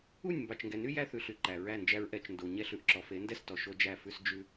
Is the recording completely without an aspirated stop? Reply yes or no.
yes